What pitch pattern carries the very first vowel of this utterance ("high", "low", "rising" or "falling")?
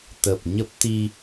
low